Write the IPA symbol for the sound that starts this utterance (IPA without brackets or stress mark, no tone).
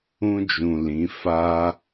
ũ